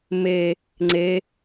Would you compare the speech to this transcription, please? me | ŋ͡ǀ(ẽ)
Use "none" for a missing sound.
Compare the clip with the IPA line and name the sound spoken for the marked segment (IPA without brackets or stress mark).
e